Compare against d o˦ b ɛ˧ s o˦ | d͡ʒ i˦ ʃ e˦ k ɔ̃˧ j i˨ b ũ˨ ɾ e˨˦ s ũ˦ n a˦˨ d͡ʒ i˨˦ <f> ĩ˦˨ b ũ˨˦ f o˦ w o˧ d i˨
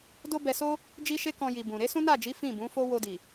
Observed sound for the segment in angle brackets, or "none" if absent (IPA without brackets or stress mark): f